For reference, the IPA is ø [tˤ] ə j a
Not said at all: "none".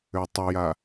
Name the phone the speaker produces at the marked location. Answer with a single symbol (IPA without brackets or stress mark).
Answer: tˤ